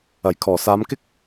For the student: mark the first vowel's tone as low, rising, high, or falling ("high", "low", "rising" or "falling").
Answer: low